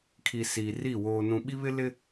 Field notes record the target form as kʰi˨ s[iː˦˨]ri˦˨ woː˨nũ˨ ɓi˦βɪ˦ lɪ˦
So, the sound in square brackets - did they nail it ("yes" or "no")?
no